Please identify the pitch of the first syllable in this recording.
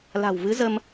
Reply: low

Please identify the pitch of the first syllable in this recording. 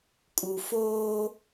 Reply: low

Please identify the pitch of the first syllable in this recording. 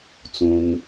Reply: low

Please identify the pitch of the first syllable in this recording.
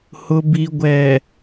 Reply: low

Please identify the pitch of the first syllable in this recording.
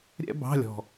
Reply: high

